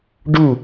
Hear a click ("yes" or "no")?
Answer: no